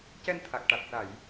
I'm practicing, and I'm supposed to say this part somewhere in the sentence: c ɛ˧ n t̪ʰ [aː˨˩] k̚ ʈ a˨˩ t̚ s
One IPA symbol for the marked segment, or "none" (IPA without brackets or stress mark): a˨˩